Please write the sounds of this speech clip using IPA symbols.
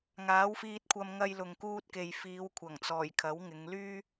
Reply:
ŋ aː˨˥ w f iː˧ t̚ kʷʰ ɐ˧ m ŋ ɐ˧ j l ʊ˨ ŋ k uː˧ t̚ k e˨ j f iː˨˧ w kʷʰ ɐ˨˩ ŋ t͡s ɔː˨˩ j kʰ ɐ˨˥ w ŋ ɪ˨˧ ŋ l yː˥

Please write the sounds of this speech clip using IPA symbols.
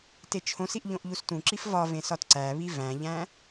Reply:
t e t͡ʃʰ õ s i ʔ ʎ õ ʔ ʎ u s t ũ ǁ i f v ɒ v ẽ s ɒ t ǀ æ β i v æ̃ ʎ æ̃

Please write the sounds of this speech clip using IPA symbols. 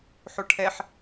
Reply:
ħ o ʈʰ ɛ ħ

